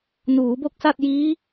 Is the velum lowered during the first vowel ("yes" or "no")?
no